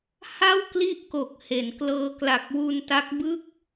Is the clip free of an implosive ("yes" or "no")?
yes